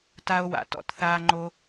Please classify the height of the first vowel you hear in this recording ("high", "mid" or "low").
low